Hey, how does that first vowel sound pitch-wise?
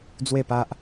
falling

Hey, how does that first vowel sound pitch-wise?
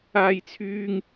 high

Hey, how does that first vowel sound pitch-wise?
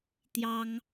high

